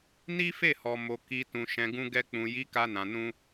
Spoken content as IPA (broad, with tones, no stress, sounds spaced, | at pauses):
n i˦ f e˦˨ h ɔ˨ m o˨ k i˨ t ũ˨ ʃ ɛ̃˨ ɡ ũ˧ ɡ ɛ˧ k͡p ũ˨ j i˨˦ k a˧ n ã˨ n ũ˧